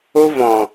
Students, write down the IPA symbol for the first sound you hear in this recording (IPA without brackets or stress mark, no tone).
o